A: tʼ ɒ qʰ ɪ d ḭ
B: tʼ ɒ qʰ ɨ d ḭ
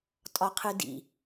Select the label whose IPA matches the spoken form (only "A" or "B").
B